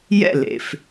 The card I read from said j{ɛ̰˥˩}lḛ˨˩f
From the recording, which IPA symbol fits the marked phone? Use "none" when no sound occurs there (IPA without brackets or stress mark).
ɛ̰˥˩